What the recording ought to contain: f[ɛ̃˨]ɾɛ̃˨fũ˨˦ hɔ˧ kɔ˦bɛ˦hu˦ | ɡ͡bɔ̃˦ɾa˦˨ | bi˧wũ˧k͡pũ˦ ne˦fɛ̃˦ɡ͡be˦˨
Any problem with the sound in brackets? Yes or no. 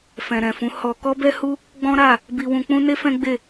no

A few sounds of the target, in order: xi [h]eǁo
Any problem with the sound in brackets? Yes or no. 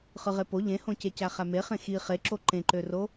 yes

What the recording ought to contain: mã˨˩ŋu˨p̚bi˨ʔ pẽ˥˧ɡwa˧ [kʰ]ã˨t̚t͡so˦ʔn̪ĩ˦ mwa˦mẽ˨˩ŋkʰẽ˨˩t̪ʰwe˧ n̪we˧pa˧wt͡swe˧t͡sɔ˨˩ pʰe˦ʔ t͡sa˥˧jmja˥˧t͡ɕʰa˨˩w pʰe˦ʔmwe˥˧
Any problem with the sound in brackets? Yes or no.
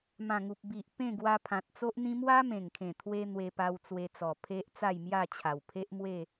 yes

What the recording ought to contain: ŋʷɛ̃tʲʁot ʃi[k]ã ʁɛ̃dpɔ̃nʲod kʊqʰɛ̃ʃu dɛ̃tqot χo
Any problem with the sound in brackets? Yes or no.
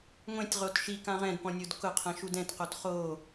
no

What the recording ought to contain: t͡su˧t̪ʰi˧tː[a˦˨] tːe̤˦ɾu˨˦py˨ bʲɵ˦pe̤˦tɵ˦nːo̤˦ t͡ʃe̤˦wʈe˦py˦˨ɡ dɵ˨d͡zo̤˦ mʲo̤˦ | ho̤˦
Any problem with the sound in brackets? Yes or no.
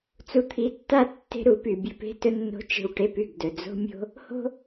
no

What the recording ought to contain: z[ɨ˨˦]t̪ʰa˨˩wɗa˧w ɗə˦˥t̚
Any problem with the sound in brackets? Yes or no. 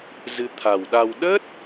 no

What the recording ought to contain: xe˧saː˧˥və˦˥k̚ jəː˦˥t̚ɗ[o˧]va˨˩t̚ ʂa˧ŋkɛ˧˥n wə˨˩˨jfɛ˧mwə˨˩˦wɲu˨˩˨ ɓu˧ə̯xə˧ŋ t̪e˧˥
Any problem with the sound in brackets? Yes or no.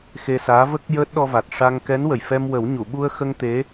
yes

